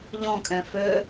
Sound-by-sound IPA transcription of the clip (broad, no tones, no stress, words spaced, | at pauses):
ʎɔ̃kʼɛ̃ fø